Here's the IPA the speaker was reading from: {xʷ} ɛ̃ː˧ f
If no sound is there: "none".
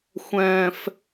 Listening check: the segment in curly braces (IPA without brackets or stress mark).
xʷ